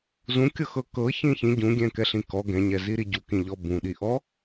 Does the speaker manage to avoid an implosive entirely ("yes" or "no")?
no